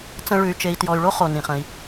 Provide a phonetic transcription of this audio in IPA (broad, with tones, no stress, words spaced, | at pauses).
t͡sə̃˨ ɭʉ˨y̯t͡ʃe˨i̯tjɔ˨y̯ɭo˦ χo˩nĩ˩χ ə̃˨i̯